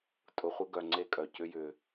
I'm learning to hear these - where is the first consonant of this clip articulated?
tongue tip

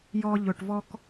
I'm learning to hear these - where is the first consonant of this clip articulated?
palate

